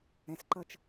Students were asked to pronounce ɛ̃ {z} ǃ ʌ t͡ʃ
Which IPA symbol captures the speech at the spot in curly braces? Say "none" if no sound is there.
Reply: s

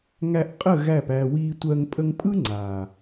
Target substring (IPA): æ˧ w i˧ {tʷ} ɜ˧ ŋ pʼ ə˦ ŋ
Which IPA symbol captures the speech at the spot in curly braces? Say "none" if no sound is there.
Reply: tʷ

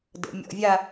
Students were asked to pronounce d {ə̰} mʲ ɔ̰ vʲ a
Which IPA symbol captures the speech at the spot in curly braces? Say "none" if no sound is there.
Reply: ə̰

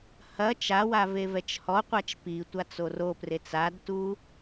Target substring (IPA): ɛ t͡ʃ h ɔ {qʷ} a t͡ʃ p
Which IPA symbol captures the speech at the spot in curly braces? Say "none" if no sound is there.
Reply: qʷ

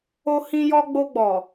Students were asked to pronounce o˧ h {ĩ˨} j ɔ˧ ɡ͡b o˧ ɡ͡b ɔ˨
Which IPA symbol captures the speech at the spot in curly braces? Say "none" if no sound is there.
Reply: ĩ˧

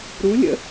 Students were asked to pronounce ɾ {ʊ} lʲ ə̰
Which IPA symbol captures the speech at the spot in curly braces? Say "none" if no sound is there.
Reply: u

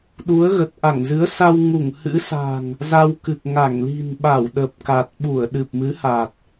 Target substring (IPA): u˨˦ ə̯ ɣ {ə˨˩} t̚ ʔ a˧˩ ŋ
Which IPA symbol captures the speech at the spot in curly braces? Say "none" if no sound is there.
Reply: ə˨˩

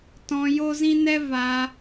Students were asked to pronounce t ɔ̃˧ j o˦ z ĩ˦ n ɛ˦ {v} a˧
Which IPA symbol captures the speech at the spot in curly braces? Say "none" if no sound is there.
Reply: v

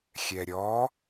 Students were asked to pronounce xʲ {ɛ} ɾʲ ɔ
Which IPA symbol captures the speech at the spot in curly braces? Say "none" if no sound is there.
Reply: ɛ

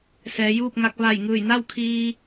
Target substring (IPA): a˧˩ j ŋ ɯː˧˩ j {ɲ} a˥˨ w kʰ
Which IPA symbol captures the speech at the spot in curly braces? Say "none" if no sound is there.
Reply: n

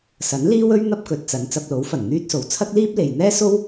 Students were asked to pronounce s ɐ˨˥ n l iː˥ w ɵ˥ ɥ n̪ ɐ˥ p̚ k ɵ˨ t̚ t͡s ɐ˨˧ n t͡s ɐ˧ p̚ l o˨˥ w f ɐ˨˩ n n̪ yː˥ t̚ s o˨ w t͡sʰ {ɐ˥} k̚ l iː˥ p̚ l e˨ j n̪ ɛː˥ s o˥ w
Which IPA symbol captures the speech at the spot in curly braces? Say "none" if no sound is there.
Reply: ɐ˥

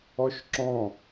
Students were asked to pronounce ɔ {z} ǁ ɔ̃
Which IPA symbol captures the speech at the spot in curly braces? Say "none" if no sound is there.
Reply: ʃ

